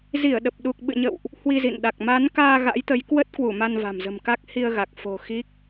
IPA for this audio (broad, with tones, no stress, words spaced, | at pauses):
zi˧˩ə̯ɗə˨˩p̚ɗu˨˩k̚ ɓɨ̰˧˨ɲə̰˧˨wʔ | hwi˧zḭ˧˨nɗa˨˩k̚ ma˨˦nkaː˧ ɣa̰˧˥jt̪ə˨˦jkwə˦˥t̚kwu˧˩ ma˧nva̤˨˩mzə̤˨˩mka˦˥k̚ hi˧ə̯ɣa˨˩k̚ fo̤˨˩ xi˦˥k̚